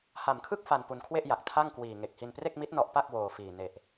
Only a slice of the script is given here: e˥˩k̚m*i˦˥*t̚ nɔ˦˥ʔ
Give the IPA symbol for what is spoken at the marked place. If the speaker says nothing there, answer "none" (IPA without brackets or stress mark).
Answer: i˦˥